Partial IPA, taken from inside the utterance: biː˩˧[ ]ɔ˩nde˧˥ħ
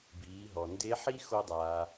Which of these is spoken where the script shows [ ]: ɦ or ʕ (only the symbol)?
ɦ